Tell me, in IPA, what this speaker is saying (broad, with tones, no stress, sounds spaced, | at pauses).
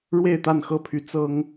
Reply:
ɻ w e˥˨ ɪ̯ t̪ a˥˨ n x ɤ˥˨ pʰ y˨˦ t͡s ɤ˦ ŋ